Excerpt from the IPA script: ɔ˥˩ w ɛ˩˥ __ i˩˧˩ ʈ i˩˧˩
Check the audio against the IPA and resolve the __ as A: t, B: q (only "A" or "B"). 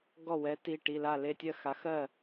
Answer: A